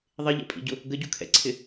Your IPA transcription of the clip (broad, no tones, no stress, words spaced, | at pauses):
ðˤɪʎɛ̰pʼḭɟʊ | ɡəɟukʰɛ̰ǀʰɪ